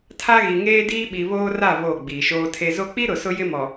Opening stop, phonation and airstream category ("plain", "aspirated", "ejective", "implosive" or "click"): aspirated